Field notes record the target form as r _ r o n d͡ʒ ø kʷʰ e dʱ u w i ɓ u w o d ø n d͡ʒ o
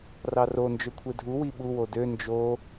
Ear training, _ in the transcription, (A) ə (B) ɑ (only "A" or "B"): B